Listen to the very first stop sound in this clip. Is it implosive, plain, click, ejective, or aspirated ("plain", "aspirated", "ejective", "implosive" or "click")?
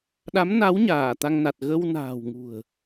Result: implosive